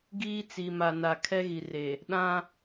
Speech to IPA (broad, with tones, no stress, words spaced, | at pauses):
ɡiː˦ t͡si˨ma˨na˨ kʰɛ˦ɣi˨re˨ | ɗã˦